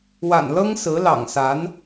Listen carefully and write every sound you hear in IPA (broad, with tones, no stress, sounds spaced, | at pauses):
w a̰˨˩ n l ɤ˥ ŋ s ɹ̩˧˥ l ɑ̰˨˩ ŋ s a˧˥ n